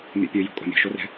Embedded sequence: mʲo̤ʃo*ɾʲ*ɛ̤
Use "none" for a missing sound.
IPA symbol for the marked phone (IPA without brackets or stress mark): r